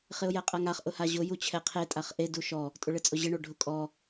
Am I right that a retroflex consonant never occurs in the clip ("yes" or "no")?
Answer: no